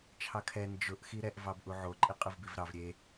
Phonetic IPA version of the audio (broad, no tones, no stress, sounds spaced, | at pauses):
t͡ʃʰ ɑ kʰ ɛ n d͡ʒ ʊ ʔ x i ɾ ɛ ʔ v ɑ b ʔ u ʕ o ǃʼ i qʼ ɯ v b i v ɾ ɑ v ɾʲ e